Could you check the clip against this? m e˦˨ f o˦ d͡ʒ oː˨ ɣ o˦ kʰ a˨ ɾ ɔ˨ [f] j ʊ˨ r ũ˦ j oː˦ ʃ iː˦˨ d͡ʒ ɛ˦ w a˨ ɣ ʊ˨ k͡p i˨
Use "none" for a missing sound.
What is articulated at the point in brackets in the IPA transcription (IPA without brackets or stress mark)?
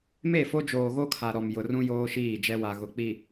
m